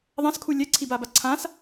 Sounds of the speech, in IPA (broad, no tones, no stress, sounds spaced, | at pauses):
ðˤ ã s kʰ u lʲ ɛ ǀʰ i b a b a ǀʰ ã s